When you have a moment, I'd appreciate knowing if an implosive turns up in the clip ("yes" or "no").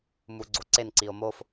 no